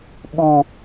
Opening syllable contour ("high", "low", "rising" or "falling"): high